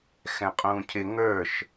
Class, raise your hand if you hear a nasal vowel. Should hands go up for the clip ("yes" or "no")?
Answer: yes